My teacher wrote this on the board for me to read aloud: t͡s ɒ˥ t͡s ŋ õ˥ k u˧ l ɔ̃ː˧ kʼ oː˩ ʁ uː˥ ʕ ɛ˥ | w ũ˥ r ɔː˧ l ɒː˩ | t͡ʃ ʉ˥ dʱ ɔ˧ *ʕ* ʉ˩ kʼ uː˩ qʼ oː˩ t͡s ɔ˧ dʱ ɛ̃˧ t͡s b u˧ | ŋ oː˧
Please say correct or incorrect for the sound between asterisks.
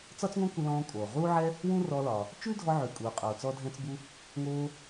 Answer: correct